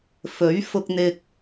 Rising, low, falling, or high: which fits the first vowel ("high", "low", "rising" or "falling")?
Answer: rising